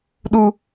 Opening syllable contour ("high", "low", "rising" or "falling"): low